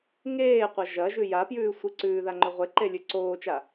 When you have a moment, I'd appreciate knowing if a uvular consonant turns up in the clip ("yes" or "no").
yes